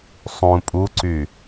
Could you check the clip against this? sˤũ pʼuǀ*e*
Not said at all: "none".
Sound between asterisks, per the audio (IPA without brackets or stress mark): y